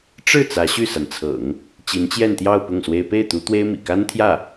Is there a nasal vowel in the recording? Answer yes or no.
no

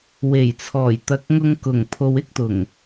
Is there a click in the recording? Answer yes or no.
no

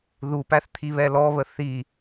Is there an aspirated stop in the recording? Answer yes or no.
yes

